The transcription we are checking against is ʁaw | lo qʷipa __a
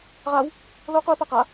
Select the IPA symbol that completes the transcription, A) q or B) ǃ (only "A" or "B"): A